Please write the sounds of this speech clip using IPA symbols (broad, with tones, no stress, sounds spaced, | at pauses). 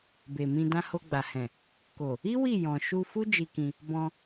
b e˨ m ĩ˧ d ã˧ h o˧ ɡ͡b a˨ h ɛ̃˨ | k o˨ | i˦ w i˦˨ j ɔ̃˨ ʃ u˧ f u˦ d͡ʒ i˧ k ĩ˧ | b ɔ̃˧